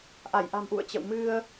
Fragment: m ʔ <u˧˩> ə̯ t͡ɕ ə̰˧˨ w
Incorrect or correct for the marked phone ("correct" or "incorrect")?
incorrect